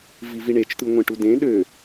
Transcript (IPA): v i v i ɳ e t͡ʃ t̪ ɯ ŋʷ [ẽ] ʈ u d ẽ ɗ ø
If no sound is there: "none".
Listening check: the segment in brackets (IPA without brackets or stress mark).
ẽ